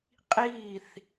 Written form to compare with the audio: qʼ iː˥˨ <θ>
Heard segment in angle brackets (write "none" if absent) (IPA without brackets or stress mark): θ